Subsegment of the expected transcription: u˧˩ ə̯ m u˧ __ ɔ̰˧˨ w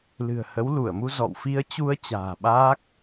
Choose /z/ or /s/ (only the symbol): z